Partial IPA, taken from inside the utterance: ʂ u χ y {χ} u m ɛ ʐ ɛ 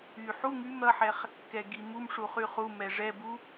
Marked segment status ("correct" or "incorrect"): correct